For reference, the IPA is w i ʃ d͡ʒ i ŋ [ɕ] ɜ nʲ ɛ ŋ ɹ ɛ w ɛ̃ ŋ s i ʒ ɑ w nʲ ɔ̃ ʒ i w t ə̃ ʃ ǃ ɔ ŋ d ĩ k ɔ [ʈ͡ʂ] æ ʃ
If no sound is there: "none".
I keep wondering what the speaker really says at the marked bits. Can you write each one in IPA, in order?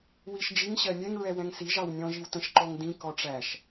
ɕ, ʈ͡ʂ

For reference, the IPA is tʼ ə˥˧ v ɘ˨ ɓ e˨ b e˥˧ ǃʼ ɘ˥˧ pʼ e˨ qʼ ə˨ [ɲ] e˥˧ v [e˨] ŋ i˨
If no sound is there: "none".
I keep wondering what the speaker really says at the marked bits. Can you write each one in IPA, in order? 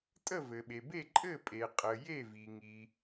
j, i˨

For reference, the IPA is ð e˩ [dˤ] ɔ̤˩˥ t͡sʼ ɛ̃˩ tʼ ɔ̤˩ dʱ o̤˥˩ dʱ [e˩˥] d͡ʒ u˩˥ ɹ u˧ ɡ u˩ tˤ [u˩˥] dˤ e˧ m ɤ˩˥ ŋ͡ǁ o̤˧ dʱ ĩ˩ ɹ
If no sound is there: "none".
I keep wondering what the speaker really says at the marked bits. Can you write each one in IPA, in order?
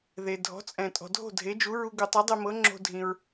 dʱ, e˩˥, u˩˥

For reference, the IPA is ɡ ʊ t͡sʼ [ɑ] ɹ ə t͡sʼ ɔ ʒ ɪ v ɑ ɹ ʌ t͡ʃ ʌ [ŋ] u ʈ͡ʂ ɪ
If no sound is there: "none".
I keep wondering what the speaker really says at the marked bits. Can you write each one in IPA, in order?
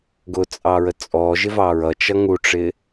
ɑ, ŋ

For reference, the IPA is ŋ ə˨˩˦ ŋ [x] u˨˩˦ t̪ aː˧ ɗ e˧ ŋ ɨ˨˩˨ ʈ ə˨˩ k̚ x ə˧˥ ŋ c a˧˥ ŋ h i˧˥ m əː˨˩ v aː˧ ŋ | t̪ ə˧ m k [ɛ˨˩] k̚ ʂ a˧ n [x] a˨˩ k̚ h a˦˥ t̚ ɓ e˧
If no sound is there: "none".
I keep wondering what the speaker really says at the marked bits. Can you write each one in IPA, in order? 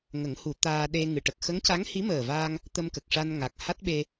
h, ə˨˩, ŋ

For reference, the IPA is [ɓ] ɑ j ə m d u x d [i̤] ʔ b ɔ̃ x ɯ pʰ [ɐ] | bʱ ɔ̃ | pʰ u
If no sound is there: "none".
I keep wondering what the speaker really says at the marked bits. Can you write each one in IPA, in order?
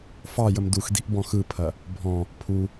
f, i̤, ɐ

